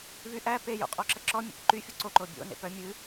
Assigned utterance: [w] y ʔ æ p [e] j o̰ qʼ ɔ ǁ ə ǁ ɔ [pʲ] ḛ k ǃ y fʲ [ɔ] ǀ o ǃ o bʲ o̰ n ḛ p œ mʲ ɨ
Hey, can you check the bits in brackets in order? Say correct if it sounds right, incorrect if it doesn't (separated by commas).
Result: incorrect, correct, incorrect, incorrect